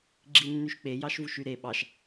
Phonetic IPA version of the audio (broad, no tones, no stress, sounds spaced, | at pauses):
ɡ͡ǁ i nː y ʃ k͡p e j ɑ ʃ v u ʃ y ɾ e ɓ ɑ ʃ